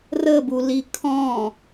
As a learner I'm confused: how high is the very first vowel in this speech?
mid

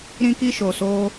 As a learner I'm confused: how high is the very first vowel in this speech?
high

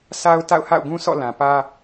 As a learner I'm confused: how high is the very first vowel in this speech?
low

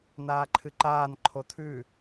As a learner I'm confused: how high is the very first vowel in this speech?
low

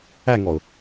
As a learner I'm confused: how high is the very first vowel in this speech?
low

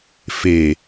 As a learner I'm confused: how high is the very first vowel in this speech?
mid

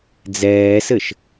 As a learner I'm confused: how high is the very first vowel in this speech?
mid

